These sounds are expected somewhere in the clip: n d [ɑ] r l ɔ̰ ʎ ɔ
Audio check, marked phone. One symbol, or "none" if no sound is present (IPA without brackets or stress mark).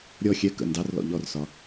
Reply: ɑ